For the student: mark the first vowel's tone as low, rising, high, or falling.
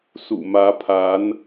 low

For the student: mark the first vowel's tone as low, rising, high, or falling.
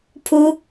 high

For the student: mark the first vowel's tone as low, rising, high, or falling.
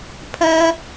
high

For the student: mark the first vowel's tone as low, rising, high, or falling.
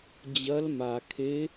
rising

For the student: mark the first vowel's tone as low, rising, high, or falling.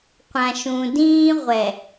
low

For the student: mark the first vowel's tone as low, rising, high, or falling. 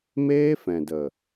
high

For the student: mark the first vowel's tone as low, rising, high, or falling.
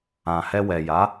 low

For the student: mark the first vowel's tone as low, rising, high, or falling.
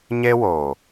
high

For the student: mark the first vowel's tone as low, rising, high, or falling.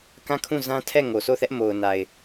falling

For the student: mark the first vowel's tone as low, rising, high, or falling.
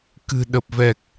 low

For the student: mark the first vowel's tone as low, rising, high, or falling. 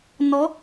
rising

